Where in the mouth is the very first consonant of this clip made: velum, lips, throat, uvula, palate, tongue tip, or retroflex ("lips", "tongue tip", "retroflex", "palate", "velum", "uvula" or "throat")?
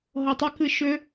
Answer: throat